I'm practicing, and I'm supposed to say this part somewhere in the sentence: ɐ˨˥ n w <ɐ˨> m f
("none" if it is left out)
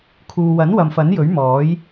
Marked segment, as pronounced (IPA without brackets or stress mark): ɐ˨